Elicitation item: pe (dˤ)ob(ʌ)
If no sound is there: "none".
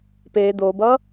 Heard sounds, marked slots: d̪, ʌ

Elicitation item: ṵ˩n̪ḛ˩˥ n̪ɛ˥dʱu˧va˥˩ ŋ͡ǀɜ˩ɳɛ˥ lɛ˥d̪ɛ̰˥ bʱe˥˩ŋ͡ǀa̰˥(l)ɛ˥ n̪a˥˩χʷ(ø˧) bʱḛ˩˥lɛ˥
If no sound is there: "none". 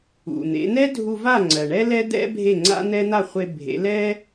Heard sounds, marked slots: n̪, e˧

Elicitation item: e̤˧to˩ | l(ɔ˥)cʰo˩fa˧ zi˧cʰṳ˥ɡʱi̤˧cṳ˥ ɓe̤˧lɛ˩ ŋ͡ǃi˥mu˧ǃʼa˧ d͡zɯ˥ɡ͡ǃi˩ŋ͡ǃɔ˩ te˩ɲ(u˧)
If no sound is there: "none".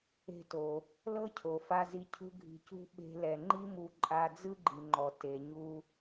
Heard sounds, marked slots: ɤ˥, u˧

